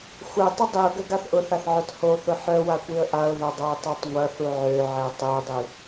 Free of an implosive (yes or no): yes